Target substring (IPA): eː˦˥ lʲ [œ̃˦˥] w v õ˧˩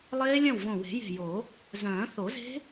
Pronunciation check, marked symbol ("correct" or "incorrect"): incorrect